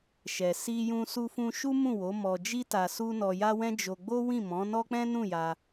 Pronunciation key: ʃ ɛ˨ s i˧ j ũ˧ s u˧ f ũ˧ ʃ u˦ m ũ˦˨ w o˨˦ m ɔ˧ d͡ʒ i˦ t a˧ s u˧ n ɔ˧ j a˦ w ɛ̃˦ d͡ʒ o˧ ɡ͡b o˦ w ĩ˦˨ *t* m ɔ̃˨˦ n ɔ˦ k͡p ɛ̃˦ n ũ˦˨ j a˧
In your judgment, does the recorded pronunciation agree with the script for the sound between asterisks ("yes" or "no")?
no